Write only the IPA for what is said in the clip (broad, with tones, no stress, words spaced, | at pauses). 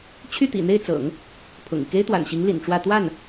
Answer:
t͡ɕʰy˥˩t̪ḭ˨˩n̪e˥˩ɪ̯t͡sɤ̰˨˩˦ŋ | pʰʊ̰˨˩ŋi˦ ke˥ɪ̯t̪wa̰˨˩nɕi˧˥ŋ lḭ˨˩nʈ͡ʂwä˥˧ t̪wa˥˩n